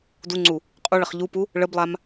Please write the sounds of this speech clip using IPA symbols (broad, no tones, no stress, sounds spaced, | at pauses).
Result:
d u ŋ͡ǀ u | qʼ u ɭ ə χ ʎ u p u | ɭ ə b lˠ a m